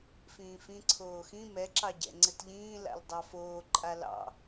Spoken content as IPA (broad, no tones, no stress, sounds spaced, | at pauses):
f ĩː f ĩ ǀʰ oː x ĩ m ɛ ǁ ɑ ɟ ɛ̰ ŋ͡ǀ ɘ t ʎ ĩː l a̰ l dˤ ɑ f oː ǃʼ a l ɑ̰